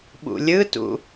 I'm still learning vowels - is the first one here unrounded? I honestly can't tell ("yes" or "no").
no